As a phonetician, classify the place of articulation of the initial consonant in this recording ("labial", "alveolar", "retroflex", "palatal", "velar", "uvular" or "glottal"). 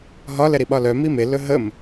glottal